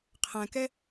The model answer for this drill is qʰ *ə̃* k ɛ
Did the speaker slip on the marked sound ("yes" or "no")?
yes